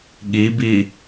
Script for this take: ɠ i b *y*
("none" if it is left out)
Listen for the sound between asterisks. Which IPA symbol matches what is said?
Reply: i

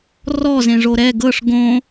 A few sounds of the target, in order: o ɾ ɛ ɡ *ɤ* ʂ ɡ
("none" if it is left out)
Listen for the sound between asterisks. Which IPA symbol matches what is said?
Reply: ɤ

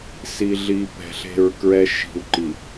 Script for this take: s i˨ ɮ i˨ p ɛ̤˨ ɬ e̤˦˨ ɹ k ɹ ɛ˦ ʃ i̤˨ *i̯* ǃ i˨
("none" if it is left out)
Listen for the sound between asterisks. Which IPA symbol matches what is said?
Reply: u̯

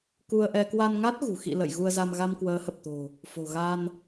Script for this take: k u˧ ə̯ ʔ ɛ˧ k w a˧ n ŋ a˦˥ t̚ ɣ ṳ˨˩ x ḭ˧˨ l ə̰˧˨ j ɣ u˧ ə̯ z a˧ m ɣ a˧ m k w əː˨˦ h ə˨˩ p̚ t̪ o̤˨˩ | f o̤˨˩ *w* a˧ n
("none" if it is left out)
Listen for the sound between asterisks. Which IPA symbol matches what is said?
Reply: ɣ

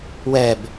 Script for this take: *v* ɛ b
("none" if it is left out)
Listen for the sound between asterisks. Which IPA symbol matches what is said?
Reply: w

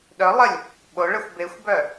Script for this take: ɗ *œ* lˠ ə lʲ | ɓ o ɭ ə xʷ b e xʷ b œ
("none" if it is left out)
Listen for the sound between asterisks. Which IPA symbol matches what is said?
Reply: œ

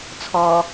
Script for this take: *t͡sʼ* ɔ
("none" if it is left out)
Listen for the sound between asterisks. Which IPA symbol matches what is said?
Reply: t͡sʰ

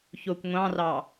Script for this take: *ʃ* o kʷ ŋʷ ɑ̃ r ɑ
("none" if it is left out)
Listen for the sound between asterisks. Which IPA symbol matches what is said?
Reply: ç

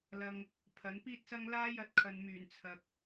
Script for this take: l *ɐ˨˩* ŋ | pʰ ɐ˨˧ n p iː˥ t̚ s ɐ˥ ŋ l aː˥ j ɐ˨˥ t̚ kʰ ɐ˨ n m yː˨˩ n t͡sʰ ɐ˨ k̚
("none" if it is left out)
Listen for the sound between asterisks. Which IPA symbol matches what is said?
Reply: ɐ˨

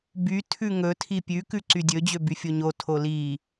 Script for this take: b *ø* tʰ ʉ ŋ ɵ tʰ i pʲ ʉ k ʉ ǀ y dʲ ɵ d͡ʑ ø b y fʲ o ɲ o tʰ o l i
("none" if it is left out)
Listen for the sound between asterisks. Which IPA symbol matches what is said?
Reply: y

